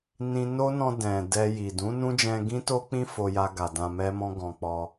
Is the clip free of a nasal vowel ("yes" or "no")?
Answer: no